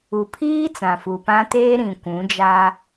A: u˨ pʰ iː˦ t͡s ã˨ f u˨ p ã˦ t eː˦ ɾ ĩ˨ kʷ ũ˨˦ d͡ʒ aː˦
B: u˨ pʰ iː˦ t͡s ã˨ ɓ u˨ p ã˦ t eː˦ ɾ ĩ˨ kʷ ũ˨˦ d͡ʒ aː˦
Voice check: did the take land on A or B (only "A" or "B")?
A